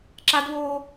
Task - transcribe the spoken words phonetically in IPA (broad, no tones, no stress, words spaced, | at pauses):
ǁadβoː